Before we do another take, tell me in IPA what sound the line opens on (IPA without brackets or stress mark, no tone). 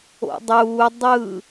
o̰